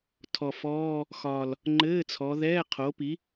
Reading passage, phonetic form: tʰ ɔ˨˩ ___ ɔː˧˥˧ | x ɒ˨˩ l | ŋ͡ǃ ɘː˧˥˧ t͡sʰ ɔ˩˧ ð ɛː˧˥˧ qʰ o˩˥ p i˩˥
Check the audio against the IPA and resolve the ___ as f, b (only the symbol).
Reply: f